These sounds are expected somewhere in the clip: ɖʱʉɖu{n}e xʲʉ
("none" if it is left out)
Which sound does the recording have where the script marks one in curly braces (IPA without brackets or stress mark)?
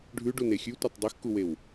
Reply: n